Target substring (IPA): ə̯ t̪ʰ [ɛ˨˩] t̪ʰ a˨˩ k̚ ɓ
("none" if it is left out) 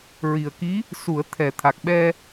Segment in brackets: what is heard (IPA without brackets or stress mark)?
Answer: ɛ˨˩